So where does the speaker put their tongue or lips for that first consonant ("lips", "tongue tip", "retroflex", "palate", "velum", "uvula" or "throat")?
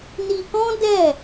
tongue tip